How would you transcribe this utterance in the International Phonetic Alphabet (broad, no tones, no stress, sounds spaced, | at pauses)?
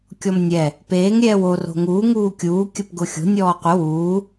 kʲ ɔ m nʲ ɛ | p eː ŋ ɾʲ ɛː w o r o̤ ŋ uː ŋ uː kʲ uː kʲ ə p ɡ ʊ xʲ o̤ nʲ ɔː qʷ ə w uː